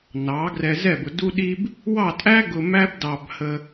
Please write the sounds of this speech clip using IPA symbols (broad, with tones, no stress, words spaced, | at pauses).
nɑ˩˥ ɡrɛ˧zɛ˥˩bʊ˧ du˥ɗi˥b | wɑ˥˩tʼæ˥ɡʊ˧ mæ˥bdɑ˧b hə˧